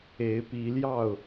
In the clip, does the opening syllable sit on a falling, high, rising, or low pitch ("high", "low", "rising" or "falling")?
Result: rising